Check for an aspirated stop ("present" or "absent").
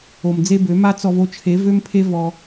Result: present